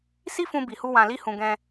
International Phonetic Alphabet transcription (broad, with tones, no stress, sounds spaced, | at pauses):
s i˦ f ũ˧ b i˨ h u˧ w ã˧ l i˦ h ũ˧ ɡ ɛ̃˧